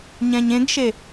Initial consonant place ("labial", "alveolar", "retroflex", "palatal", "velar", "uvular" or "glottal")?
palatal